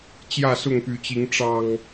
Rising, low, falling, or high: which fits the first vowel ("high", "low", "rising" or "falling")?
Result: falling